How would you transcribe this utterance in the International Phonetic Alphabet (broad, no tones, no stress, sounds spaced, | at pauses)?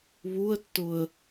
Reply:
β u ə̯ tː ʊ ə̯